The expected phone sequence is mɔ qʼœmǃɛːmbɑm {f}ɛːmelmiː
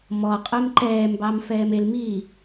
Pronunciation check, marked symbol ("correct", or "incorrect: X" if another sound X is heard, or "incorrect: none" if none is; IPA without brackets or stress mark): correct